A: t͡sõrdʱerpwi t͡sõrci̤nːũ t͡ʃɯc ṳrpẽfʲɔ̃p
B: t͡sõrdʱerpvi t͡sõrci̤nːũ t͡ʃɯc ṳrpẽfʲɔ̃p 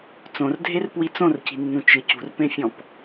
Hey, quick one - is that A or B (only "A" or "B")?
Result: A